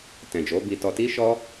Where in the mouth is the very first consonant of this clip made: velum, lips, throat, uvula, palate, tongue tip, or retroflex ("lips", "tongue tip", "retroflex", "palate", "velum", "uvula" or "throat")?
tongue tip